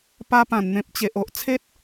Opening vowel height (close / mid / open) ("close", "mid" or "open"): open